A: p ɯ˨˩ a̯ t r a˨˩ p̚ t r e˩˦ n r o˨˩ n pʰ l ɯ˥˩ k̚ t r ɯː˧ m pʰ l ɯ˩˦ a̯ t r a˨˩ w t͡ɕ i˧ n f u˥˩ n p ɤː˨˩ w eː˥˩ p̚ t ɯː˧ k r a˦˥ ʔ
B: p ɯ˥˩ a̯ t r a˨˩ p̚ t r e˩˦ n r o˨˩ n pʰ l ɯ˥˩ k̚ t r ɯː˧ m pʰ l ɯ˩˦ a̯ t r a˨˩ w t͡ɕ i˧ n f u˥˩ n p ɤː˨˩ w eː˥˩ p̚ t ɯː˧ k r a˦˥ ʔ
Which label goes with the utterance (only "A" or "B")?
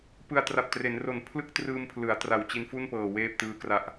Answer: A